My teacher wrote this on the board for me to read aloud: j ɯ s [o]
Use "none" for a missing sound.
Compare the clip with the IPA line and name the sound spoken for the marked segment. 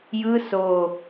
o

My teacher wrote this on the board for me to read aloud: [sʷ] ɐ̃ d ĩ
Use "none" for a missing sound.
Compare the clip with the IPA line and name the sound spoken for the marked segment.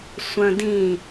sʷ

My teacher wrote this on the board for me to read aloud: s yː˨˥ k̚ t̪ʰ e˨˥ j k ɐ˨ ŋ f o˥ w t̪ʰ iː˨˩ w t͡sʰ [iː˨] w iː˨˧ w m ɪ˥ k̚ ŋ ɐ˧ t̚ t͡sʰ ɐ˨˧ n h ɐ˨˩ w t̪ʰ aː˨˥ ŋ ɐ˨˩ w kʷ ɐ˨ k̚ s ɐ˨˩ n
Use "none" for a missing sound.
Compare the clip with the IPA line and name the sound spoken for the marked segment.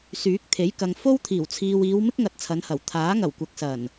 iː˨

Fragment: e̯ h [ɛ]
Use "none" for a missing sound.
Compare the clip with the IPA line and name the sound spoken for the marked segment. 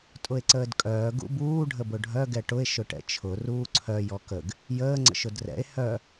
œ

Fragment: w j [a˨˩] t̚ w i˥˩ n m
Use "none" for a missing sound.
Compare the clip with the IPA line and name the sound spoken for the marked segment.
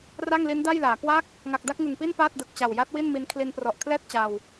a˦˥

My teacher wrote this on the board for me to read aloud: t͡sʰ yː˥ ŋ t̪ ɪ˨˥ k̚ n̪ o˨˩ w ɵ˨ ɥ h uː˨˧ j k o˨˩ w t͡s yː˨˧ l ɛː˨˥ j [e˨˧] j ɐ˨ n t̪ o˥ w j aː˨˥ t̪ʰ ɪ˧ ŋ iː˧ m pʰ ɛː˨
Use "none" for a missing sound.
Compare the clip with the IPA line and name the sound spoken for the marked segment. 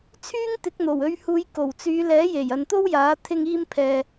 e˨˩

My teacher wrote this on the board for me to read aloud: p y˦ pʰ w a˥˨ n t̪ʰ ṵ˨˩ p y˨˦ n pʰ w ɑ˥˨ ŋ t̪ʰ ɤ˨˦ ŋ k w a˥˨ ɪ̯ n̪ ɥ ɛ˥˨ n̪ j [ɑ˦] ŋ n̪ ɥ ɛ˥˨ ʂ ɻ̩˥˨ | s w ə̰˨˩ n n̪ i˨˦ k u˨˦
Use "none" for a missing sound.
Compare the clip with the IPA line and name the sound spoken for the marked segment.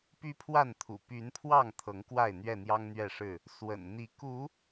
ɑ˦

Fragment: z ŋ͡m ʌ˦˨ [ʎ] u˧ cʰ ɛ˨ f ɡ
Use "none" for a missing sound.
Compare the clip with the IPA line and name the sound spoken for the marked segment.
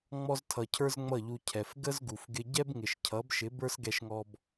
ʎ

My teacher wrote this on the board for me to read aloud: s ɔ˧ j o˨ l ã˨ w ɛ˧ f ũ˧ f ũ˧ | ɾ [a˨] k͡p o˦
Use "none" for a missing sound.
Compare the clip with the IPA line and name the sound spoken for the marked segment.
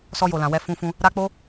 a˦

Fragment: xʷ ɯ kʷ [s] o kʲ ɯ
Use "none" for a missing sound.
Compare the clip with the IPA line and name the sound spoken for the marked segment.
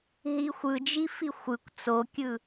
t͡s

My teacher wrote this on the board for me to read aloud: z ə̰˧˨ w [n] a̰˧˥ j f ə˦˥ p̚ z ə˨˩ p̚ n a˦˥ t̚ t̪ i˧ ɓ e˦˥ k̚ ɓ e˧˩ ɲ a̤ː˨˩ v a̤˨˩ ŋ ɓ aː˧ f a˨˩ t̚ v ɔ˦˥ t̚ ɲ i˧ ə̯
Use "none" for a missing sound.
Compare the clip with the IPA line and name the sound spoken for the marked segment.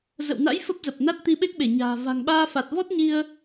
n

